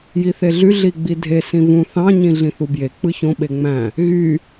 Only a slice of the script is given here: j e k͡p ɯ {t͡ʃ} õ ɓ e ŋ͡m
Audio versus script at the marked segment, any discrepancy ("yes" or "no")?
yes